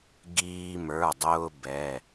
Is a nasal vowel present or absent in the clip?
absent